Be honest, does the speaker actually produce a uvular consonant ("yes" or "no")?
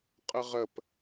yes